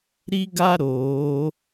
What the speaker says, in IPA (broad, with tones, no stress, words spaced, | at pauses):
ɾi˦ɡa˦ ɾoː˨˦